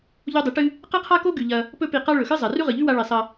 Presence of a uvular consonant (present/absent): present